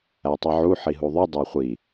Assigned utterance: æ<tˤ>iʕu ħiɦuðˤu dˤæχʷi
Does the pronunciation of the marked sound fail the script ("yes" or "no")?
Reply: no